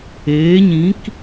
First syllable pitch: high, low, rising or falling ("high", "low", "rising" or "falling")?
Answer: rising